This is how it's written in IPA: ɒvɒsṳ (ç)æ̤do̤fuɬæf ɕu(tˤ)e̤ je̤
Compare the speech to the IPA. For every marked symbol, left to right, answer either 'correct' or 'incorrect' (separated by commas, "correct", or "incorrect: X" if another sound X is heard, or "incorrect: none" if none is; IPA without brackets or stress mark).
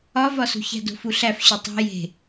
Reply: correct, correct